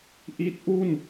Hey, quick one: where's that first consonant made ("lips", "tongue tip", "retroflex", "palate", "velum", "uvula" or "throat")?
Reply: throat